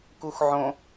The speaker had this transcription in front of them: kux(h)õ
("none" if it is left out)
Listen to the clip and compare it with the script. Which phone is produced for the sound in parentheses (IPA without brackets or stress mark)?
ʕ